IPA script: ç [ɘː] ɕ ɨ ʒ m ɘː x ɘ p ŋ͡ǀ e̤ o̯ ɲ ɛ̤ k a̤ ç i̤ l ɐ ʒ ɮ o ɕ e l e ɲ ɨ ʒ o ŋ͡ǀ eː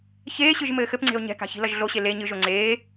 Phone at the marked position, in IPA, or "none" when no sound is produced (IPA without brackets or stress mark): eː